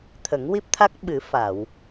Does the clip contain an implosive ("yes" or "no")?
yes